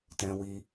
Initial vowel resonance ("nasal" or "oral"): nasal